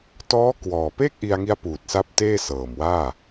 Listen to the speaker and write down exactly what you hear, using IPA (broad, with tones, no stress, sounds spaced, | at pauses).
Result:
t ɔː˦˥ k w ɔː˨˩ p e˥˩ k̚ ʔ i˧ a̯ ŋ i˦˥ a̯ p uː˨˩ t̚ s a˦˥ p̚ t eː˥˩ s ɤː˨˩ m w aː˥˩